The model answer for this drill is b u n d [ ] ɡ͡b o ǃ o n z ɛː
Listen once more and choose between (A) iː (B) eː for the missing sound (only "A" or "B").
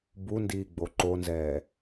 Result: A